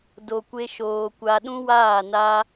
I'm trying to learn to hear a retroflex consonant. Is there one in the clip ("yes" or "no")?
no